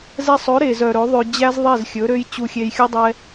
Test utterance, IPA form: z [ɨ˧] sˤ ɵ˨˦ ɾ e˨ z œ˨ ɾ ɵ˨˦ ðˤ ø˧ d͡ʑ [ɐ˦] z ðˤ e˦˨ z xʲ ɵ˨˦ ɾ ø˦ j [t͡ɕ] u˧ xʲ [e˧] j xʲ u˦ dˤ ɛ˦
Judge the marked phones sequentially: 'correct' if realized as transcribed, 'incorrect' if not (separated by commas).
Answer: incorrect, incorrect, correct, correct